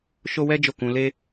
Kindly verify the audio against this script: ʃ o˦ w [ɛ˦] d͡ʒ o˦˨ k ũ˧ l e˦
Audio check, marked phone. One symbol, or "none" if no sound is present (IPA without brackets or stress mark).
ɛ˦